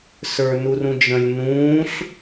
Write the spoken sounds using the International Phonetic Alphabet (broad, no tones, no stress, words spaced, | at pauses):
sə˞nurũd͡ʒə̃lʲ nũːɬ